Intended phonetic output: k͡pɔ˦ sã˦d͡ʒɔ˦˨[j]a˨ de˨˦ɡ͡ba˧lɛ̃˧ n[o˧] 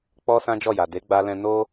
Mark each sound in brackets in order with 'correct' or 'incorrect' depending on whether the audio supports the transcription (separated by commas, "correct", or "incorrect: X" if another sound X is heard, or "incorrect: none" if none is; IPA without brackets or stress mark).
correct, incorrect: o˦